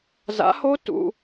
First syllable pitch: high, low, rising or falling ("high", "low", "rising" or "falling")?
rising